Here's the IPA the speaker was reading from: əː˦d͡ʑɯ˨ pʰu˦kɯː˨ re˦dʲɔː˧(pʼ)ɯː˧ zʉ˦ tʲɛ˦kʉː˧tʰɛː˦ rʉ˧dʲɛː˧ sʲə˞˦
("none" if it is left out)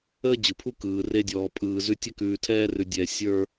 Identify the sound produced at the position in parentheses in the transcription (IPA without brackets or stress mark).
pʼ